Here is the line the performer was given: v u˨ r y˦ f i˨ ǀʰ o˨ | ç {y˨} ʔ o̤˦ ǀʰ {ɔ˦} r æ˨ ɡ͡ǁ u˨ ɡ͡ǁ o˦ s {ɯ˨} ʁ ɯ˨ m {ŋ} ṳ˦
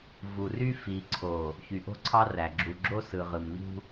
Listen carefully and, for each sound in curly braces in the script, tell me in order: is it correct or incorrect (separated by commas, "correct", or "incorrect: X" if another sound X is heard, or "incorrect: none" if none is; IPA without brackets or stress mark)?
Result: correct, incorrect: ɑ˦, correct, correct